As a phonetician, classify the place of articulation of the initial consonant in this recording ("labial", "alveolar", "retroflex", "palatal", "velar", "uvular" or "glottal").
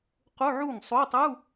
uvular